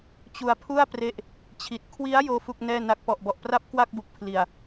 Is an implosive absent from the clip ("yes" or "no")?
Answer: yes